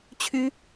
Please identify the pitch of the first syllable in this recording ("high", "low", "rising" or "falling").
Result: high